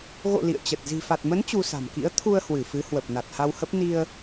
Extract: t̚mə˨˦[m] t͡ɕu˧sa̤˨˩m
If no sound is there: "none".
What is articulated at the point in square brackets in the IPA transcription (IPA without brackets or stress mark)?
n